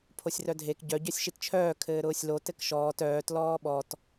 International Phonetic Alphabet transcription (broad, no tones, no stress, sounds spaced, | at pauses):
pʰ o sʲ r œ dʱ e k ɟ œ ɟ œ sʲ ʃ i t t͡ʃʰ œː kʰ ɘː ɾ ʊː sʲ l o t ɘ k ʃ ɔː t œː t l ɔː ɓ ɔ t